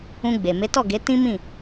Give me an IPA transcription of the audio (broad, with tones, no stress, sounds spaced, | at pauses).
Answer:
ũ˧ ɡ͡b e˨ m e˨˦ t ɔ˦˨ ɡ e˨˦ t ĩ˦ m ĩ˦˨